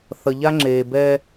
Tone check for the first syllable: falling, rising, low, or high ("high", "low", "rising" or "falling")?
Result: low